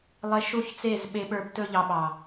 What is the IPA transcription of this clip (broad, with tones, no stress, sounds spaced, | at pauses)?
lˠ e˧ ʃ u˦˨ ç t͡s e˦˨ z ɓ e˧ ɓ ə˞˧ b t ɵ˦ ʎ ɑ˧ ɓ ɑ˨